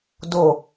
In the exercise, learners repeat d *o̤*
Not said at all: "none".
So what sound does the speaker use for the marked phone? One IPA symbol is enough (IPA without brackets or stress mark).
o